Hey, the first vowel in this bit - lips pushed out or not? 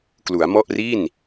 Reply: yes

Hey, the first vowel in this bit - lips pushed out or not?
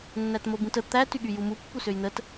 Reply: no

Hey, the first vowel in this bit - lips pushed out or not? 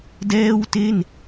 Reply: no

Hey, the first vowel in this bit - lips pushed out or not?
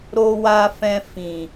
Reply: yes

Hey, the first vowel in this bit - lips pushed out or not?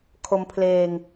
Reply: yes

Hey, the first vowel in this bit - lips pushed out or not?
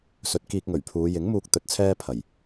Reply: yes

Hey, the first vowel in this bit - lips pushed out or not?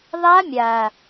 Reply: no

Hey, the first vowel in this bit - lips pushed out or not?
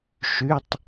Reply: yes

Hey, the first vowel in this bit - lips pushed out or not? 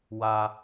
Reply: no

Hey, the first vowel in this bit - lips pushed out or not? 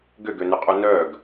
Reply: yes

